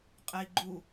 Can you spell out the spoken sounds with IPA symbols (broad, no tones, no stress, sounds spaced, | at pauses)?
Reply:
qʼ ɛ i̯ ɡ͡ǃ u